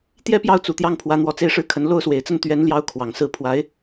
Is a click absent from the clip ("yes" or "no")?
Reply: yes